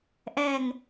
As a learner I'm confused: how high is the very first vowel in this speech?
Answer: mid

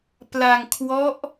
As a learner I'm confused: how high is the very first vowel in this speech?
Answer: low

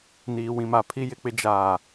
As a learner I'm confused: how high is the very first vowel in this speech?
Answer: high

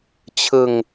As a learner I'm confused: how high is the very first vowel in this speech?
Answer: high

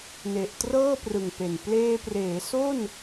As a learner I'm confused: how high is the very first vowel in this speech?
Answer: mid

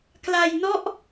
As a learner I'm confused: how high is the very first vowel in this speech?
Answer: low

